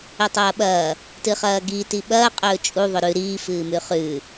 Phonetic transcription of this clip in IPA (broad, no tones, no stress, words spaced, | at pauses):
ɵtˤɐːɓɐː | tɨχɐːɡi tiɓɐː qʼɵːt͡ʃʼu ðˤɵɾʉ ɾiː fɨːmʉχʉː